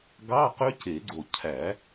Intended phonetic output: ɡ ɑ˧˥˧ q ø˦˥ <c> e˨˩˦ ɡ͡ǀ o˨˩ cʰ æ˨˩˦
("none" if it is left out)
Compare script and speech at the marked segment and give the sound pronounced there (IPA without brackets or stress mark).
c